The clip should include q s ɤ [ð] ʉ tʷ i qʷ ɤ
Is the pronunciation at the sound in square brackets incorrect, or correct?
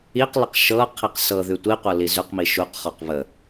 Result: correct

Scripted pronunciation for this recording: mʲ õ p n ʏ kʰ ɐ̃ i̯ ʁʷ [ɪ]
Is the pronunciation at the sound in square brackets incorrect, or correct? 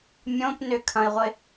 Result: correct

